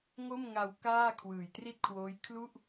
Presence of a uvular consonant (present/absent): absent